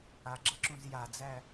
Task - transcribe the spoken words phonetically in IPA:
a ɡ͡ǁ ɐ ǁ ũ z j a d͡z æ

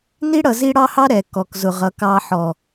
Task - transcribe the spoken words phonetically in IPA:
n i˦ ɽ ʌ˨ z i˦ ɽ ɑ˦ h ɑ˦ ɾ ɛ˨ k ɔ˨ k z ʊ˨ ʁ ʌ˨ k ɑ˨ ħ ɔ˨

